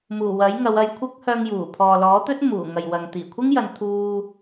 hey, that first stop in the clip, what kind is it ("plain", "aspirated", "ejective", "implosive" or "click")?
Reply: aspirated